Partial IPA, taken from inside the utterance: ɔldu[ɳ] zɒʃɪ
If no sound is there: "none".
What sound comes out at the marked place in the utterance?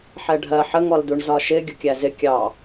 ɳ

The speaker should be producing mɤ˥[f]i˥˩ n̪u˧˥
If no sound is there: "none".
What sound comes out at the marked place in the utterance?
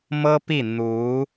p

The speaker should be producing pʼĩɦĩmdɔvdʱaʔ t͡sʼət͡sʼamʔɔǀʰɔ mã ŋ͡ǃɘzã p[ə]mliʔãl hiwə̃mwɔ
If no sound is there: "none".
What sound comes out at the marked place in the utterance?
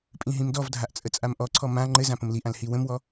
ə̃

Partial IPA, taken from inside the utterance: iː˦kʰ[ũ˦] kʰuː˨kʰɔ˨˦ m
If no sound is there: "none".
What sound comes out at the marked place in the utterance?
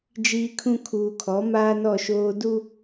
ũ˦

